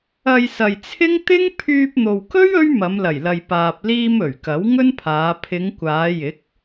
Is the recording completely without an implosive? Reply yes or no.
yes